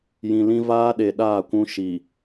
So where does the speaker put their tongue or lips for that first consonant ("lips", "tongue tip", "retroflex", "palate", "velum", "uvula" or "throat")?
palate